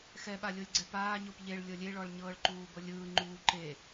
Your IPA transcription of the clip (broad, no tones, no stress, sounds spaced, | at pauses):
x ɛ ɓ a lʲ o lʲ ɡ͡ǀ ɛ p aː ɲ o p ʎ e ɭ lʲ ɤ lʲ e ɭ ɔ ɭ ɲ ɤː ɭ ǃ uː b ɤ lʲ ɯː ŋ͡ǃ uː ǃ e